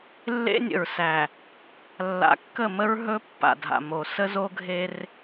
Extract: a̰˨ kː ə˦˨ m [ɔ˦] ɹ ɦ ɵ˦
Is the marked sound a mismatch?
yes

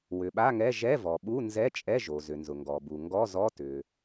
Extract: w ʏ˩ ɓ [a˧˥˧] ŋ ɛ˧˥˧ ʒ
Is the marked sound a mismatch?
no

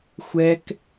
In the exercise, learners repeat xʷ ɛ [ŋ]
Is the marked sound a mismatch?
yes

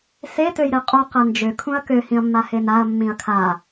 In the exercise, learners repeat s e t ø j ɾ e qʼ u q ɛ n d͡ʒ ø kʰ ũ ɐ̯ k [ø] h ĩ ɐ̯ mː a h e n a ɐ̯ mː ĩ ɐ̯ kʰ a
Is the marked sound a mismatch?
no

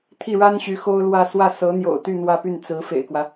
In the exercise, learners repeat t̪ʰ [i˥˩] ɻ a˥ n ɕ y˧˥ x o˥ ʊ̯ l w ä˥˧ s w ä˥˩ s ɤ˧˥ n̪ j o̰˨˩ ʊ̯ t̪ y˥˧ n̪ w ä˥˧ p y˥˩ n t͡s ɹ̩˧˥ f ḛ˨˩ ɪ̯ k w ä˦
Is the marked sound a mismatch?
no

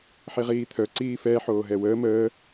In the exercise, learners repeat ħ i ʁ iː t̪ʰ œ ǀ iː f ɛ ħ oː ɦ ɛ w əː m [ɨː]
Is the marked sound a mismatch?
yes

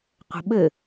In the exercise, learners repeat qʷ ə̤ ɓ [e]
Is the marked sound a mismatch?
yes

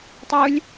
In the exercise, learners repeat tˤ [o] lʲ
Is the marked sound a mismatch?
yes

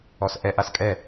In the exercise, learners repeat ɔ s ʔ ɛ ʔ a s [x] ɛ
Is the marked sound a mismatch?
yes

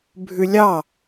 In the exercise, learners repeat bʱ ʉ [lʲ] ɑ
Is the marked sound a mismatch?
no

